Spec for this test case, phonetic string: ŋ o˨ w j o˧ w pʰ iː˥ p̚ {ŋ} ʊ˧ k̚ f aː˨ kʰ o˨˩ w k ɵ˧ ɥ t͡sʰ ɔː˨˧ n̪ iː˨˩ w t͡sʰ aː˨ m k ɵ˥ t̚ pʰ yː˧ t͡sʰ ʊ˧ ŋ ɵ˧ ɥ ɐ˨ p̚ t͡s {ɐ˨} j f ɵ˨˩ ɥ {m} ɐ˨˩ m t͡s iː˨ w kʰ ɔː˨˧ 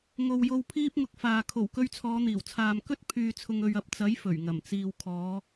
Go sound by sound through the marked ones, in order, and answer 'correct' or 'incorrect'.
correct, incorrect: ɐ˨˥, incorrect: ŋ

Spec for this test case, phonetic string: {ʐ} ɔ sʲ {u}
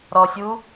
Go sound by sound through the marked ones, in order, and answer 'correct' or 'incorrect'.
incorrect: ɾ, correct

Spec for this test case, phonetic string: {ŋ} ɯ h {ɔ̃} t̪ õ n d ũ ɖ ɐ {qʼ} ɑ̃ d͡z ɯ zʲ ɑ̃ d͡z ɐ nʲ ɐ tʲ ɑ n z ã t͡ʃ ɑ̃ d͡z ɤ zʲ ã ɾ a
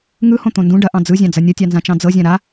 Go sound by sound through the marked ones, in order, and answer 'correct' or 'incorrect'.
correct, incorrect: õ, incorrect: ʔ

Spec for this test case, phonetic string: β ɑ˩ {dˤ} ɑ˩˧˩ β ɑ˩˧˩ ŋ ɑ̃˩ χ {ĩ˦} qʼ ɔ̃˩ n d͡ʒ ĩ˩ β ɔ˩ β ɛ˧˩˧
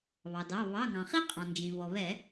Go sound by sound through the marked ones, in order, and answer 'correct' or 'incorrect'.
incorrect: d, incorrect: i˦

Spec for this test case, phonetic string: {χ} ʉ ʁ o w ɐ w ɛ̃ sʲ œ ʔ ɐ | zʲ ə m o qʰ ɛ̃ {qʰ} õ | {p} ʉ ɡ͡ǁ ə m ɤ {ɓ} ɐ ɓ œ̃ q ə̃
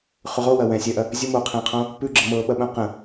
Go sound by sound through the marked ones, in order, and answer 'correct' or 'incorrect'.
correct, correct, correct, correct

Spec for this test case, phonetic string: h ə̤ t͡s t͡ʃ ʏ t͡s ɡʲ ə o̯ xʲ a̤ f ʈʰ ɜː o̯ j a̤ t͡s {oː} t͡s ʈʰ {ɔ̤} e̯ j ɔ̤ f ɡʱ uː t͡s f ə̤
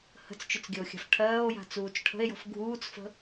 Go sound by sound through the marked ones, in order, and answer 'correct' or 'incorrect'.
incorrect: uː, incorrect: ə̤

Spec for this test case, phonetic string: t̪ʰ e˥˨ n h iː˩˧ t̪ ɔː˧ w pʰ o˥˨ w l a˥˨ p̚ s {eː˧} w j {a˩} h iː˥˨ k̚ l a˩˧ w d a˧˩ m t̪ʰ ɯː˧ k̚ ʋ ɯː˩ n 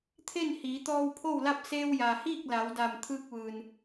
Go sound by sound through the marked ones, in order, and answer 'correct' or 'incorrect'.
correct, correct

